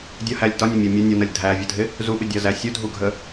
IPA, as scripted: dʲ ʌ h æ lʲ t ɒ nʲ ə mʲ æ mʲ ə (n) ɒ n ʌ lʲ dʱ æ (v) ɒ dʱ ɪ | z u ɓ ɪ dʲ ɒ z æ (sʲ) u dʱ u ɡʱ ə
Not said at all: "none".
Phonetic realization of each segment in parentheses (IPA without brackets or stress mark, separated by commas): nʲ, vʲ, sʲ